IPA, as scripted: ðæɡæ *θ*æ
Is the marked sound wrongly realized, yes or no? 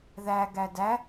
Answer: yes